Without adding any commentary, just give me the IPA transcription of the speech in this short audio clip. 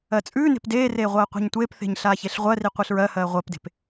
ɜ t͡sʼ ʉː n e̤ p d eː r eː ʁʷ ɜː qʷ e̤ ɲ tʷ eː p θ e̤ ɲ ɬ aː ç e ɬ ʁʷ ɜ r i qʷ e ɬ ɹ ɜ h ɜː ʁʷ ɜ p d e̤ p

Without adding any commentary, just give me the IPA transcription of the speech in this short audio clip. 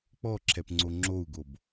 k͡p ɔ ǁʰ ɛ p ŋ͡ǀ o ŋ͡ǁ o u̯ ɡ o b

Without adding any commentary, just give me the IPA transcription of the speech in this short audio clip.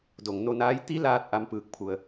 d o˩ ŋ n o˧ n aː˧˥ j t̪ i˧˥ l aː˧ t̚ ʔ a˧˥ m p ɯː˧ k̚ pʰ u˧ ə̯

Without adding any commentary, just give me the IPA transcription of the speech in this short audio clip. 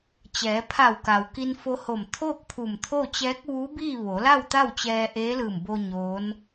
t͡ɕ ɛː˩˧ pʰ a˧˩ w k a˩ w k i˧ n f o˧ h o˧˩ m t̪ʰ oː˥˨ k̚ pʰ u˧˩ m t̪ʰ o˥˨ t͡ɕ ɛː˧˥ k̚ ʋ uː˧˥ b iː˥˨ ʋ o˩˧ l a˥˨ w t̪ a˥˨ w t͡ɕ ɛː˧ ʔ eː˧˥ l ɯː˧˩ m b o˧ ɲ oː˧˥ n

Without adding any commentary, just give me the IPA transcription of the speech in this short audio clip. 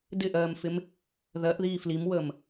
d ɪ ʔ ɜː m f ɪ m | ð ɜ ʔ ð iː f l i m w əː m

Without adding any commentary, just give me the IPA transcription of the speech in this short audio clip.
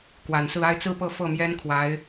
k w a˨˩ n s ɹ̩˥˧ a˥˧ ɪ̯ t͡s ɹ̩˥˧ p ɤ˥˧ f ɤ˥˩ m j ɛ˥ n kʰ w a˧˥ ɪ̯

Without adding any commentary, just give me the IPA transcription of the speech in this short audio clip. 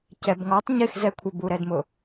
c ɛ b ŋ ɔ tˤ ɲ ɪ x z ɛ kʷʰ ə b u ɾ ɛ d m ʊ

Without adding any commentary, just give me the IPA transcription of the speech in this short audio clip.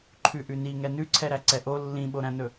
ǃʰ ʉ ʔ ʉ n i ŋ ɛ n ʉ ǀʰ ɛ ɾ æ ǀ ɛ ʔ o lː ĩ ɓ o ɾ æ̃ n ɵ

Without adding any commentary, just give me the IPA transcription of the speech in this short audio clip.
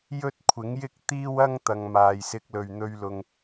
j ɵ˥ t̚ kʷʰ ɪ˨˥ ŋ j ɪ˥ k̚ t̪ iː˥ w ɐ˥ ŋ t̪ ɐ˨ ŋ m aː˨ j s ɪ˧ k̚ l ɵ˨ ɥ n̪ ɵ˧ ɥ l ʊ˨ ŋ

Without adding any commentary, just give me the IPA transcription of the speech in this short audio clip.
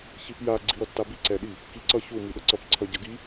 ç i p j a ɡ͡ǀ i w ʌ tː a b i ǀ ɛ ɗ i | k i ǀ ʌ ç u m i ɗ ʌ ǀ ʌ p ǀʰ ʌ ɟ ʌ ɡ i

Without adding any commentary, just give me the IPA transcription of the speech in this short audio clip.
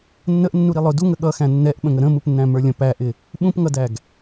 nː ə ʔ nː u ɾ i lˠ ʊ d u ŋ ə ɠ ʌ x æ̃ nː ɛ ʔ ɓ ə̃ ŋ ə ɾ ə̃ m u p nː æ̃ m ə˞ lʲ ə̃ p æ ʔ ɪ | ɓ ũ p ŋ ʌ d æ ɡ

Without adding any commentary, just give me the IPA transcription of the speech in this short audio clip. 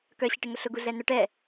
k œ ɕ ɪ ʈ ɪ ŋ ʊ ɬ ʊ ɡ u ɮ ɛ n œ ʈ ɛ

